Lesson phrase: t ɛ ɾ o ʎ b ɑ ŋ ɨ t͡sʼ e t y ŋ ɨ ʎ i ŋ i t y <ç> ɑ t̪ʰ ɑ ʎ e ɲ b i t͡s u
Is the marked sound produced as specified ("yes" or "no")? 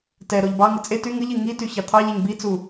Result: yes